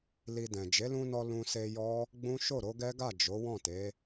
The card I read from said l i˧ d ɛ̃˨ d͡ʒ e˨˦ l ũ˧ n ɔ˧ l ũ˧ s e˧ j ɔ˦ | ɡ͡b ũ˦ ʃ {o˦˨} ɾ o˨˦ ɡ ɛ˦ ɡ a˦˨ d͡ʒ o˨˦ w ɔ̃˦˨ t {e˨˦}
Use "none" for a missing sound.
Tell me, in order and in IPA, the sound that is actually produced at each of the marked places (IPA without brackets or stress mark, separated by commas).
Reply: o˦˨, e˨˦